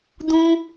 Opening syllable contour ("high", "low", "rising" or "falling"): high